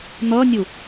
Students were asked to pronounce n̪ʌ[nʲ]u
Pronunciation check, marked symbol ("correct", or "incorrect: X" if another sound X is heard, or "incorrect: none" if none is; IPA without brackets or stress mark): correct